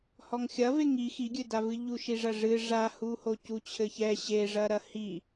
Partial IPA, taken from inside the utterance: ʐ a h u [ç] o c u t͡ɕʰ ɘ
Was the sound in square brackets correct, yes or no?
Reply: no